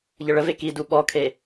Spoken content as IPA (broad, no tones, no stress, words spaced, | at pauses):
ʎəɭəve kidu ɓɔkʰe